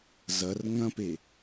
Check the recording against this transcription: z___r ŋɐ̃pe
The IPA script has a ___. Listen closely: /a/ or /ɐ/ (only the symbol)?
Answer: ɐ